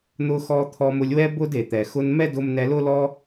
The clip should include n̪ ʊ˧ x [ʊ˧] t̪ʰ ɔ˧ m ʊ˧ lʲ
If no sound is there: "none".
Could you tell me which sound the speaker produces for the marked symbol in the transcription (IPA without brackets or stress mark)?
ɔ˧